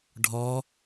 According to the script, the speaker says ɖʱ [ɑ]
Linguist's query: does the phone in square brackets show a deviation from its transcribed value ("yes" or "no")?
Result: yes